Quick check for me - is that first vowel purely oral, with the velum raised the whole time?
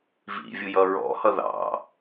yes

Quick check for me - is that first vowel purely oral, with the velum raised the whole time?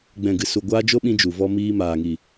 no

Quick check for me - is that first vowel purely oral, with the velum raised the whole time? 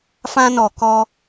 no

